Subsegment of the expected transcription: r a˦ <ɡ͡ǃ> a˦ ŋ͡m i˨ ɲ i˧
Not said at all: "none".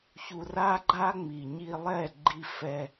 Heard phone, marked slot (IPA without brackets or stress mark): ɡ͡ǃ